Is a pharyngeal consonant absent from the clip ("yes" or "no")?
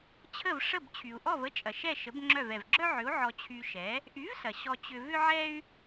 no